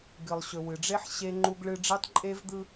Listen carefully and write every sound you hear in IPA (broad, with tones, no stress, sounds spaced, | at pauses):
ɡ ɨ˨ lˠ ɕ ɵ˨ w ɨ˨ ɖ͡ʐ e˦ ħ ɕ e˦ ŋ͡ǃ u˦ ɡ ɭ ɨ˦ ɖ͡ʐ e˦ tˤ ǃʼ e˦ v d̪ ɯ˦